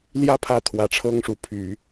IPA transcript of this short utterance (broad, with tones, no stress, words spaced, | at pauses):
ljä˥pʰä˧˥ t̪ʰwä˨˩ʈ͡ʂʰɤ˥ŋʂu˧˥pʰy˨˩˦